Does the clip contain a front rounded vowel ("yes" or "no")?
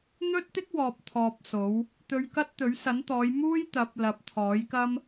no